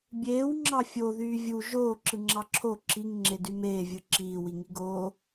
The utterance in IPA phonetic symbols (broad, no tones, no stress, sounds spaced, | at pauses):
bʲ eː w ŋ͡ǁ ɑ fʲ o ð yː vʲ u ʒ oː ǁ ɯ ŋ͡ǁ ɑ ǁʰ o ǁ i ŋ ŋ͡ǁ e d y m eː vʲ ɯ ǁ iː w i ŋ i ɡ oː